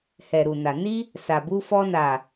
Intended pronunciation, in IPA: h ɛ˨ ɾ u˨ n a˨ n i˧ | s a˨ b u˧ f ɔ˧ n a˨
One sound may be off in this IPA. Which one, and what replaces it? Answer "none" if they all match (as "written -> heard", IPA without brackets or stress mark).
none